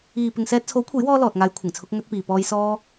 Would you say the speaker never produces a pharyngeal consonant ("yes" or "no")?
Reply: yes